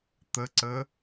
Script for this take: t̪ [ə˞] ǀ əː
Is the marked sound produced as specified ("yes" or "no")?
no